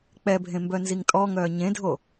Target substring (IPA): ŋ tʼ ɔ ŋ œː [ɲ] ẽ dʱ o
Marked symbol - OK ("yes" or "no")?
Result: yes